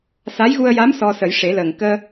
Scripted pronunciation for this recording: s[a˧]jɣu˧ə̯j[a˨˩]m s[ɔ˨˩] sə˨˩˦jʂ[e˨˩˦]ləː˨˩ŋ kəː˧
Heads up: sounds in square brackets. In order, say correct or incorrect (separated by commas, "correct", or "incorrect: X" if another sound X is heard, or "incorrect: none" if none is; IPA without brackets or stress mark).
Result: incorrect: a˧˥, incorrect: a˧˥, incorrect: ɔ˧, correct